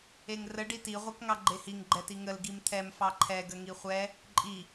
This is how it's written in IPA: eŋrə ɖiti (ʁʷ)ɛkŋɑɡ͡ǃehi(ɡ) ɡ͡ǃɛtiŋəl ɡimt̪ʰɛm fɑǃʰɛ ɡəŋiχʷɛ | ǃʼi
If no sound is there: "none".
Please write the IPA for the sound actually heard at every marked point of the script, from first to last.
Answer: ʁʷ, ŋ

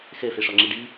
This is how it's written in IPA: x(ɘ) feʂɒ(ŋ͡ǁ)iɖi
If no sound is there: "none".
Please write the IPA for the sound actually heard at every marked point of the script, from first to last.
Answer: ɘ, ŋ͡ǁ

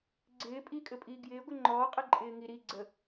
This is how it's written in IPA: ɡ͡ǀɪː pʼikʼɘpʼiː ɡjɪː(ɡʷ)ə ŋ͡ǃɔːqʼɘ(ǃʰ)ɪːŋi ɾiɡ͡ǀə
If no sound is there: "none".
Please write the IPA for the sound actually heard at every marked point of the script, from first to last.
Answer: ɡʷ, ǃʼ

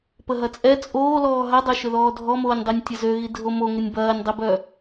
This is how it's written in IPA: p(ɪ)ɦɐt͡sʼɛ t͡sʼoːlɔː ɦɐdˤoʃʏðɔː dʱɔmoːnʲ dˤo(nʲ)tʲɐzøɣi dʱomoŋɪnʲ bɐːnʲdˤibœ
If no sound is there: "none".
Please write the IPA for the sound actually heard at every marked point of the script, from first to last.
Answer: ə, nʲ

